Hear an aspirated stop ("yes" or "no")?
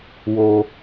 no